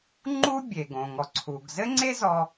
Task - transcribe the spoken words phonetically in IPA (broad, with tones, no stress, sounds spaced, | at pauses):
ŋ͡ǃ u˥ bʲ e˩ ɡ õ˩ ŋ ɔ˩ ǀʰ u˩ ɡ z ɘ˥ ŋ͡ǀ e˥ z ɔ˧